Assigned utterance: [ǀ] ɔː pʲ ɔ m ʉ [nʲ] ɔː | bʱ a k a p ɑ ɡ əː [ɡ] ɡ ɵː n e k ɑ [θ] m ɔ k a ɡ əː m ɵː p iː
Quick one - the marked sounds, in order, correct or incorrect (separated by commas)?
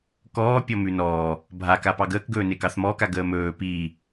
incorrect, incorrect, incorrect, correct